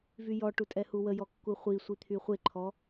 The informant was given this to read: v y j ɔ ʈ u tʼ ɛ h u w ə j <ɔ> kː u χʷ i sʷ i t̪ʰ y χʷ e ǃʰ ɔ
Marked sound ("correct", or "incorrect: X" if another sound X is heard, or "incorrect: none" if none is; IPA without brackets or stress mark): correct